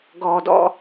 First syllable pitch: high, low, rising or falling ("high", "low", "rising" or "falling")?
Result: low